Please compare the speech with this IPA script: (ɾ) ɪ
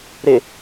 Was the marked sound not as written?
no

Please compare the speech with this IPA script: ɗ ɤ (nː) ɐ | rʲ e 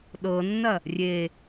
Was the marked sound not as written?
no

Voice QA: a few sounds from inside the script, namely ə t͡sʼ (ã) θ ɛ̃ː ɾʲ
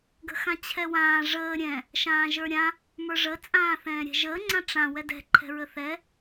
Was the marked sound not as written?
yes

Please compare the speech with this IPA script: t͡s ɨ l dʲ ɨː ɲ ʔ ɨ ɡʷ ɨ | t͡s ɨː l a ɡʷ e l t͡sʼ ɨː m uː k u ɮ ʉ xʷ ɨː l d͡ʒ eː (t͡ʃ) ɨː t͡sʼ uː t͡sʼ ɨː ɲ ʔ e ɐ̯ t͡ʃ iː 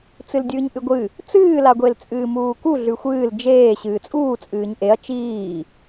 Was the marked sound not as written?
yes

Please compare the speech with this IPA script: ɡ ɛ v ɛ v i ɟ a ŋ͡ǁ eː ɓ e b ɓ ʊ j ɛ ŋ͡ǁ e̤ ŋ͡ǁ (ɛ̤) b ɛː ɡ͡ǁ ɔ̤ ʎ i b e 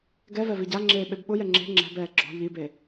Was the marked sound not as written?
no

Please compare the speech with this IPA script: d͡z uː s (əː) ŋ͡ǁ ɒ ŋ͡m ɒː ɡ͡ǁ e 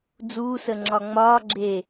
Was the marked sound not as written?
no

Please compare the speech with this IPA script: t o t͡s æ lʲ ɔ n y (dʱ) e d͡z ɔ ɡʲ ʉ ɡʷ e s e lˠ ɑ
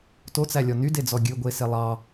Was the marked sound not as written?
yes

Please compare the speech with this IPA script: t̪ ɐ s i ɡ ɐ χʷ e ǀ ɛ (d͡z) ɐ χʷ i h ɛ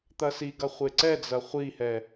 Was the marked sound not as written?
no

